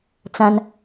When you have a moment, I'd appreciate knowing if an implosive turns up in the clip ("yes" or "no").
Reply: no